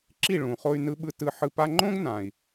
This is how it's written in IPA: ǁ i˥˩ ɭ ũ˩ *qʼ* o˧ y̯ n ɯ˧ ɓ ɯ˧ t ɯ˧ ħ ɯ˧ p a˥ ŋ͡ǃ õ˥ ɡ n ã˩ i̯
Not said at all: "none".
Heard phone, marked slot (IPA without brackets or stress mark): χ